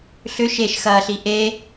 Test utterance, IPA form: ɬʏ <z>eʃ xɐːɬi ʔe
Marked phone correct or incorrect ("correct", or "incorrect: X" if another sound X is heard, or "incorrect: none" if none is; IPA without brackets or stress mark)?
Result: incorrect: ʃ